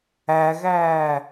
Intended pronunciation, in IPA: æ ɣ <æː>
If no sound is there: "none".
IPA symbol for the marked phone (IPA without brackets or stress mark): æː